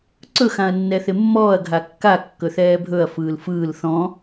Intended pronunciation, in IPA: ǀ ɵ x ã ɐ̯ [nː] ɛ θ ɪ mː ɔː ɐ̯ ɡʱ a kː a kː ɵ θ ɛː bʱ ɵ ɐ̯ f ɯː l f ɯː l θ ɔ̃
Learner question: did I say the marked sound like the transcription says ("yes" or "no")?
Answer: yes